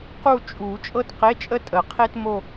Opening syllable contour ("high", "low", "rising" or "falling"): falling